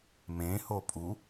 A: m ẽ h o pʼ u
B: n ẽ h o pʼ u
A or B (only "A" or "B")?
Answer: A